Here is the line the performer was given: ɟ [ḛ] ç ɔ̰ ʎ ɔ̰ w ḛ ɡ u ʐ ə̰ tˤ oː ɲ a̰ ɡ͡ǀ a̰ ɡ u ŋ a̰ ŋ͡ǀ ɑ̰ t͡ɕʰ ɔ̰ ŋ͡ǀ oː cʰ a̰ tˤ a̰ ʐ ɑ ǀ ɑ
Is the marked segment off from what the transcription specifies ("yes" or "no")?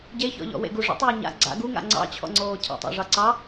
yes